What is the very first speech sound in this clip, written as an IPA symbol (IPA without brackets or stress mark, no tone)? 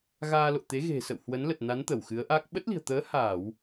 ɣ